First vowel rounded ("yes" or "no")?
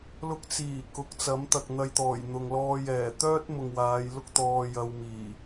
yes